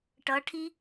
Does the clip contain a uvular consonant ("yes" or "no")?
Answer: no